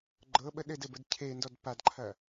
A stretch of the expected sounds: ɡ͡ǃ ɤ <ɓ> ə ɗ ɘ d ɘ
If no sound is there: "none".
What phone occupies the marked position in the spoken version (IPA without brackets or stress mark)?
ɓ